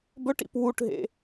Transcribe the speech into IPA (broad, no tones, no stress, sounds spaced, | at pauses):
b ɵ ʈ ḭ p w u ʈ ɦ ḛ